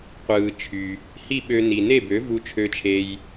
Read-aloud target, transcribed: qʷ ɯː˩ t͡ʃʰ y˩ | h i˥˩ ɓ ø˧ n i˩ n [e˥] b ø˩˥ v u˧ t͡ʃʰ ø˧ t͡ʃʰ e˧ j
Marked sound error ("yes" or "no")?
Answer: yes